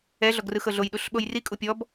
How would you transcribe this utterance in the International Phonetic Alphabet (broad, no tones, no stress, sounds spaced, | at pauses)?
ɛ ɮ ɔ ɡ r ɯ x ɤ ɮ o j ɗ u ɬ ɓ o j r i kʼ u pʲ ɔ b